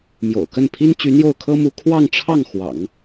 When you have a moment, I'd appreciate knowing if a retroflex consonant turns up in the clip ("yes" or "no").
yes